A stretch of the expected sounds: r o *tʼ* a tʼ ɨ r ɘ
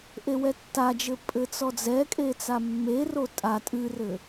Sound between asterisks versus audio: correct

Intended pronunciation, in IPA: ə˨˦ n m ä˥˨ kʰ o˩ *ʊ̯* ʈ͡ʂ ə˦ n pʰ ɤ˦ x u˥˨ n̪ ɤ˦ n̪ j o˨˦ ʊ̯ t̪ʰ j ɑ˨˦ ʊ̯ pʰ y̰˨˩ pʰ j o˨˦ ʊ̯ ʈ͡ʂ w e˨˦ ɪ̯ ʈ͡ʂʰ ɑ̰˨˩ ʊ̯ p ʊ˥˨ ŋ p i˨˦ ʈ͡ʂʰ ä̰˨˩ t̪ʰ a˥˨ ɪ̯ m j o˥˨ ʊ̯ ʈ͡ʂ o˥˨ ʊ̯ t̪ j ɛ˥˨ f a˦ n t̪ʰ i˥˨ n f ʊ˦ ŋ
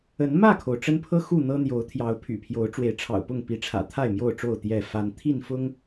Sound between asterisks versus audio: correct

